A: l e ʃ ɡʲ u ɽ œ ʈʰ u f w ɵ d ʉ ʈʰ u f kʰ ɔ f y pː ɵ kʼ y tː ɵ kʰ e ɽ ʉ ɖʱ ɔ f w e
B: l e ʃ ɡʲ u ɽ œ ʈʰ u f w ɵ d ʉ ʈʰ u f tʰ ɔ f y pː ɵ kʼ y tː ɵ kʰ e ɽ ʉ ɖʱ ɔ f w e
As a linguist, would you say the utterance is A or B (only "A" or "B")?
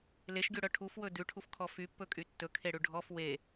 A